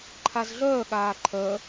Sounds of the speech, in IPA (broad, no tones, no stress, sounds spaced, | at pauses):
ǃʰ a z ɮ œː ɠ aː ǃʰ œ